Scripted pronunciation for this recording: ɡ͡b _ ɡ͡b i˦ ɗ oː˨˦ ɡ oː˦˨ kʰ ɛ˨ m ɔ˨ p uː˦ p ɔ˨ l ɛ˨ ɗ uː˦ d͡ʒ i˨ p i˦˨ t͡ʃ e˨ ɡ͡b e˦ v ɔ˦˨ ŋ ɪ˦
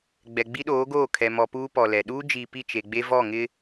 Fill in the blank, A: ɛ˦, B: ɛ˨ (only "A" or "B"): B